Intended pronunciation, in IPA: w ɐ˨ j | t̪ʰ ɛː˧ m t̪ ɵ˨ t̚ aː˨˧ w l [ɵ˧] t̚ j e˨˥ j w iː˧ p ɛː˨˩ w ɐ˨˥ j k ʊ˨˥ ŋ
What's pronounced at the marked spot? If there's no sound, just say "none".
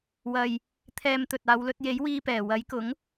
ɵ˧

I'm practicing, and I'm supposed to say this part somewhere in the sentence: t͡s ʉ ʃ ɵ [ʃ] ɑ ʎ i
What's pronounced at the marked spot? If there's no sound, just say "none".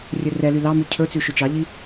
t͡ʃ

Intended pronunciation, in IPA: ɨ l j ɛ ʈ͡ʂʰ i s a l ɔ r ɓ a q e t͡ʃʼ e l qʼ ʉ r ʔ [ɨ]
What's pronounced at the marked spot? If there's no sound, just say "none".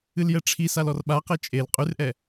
ɛ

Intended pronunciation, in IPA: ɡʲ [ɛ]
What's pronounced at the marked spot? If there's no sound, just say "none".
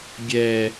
ɛ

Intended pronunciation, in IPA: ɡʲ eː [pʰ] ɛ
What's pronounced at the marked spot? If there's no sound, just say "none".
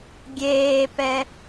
p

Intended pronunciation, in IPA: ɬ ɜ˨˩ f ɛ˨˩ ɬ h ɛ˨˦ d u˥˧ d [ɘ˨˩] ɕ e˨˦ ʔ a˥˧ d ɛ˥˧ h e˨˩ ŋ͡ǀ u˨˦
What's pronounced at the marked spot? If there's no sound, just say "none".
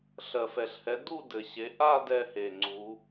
ɘ˨˩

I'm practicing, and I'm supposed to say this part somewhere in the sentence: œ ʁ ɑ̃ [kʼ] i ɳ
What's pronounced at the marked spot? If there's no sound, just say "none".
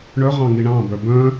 ŋ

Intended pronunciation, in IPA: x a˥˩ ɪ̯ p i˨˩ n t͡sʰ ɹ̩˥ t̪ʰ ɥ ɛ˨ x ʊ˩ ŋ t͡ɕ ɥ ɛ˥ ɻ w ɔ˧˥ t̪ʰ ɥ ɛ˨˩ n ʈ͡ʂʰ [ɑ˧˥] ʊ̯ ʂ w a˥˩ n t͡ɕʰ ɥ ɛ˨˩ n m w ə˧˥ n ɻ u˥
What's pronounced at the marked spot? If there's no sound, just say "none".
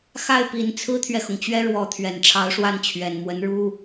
ɑ˧˥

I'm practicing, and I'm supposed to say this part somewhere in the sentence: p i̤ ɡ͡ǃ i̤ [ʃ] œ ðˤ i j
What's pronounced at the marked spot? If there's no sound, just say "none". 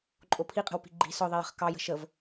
s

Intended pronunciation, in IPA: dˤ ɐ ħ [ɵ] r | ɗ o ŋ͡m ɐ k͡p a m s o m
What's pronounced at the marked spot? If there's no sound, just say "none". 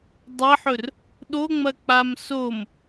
ɵ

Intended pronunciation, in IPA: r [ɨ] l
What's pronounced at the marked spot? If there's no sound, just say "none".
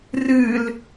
ɨ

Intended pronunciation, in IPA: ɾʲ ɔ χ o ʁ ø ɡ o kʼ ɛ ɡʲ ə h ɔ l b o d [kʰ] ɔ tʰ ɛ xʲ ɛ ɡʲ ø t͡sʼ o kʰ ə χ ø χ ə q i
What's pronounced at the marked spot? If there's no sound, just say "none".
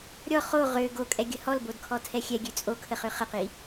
kʰ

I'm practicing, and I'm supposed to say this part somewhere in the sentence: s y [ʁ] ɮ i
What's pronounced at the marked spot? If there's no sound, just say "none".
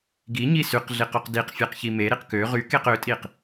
q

